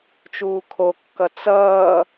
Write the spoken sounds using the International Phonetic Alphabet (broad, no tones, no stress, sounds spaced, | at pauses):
t͡ʃ uː kʰ o kː ʌ t͡s ʌː